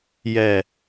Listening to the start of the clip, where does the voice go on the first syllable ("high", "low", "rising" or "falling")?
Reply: low